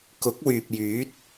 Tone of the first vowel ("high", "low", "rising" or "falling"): rising